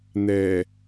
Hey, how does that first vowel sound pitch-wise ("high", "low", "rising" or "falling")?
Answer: low